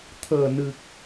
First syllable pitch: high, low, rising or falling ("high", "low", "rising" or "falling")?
low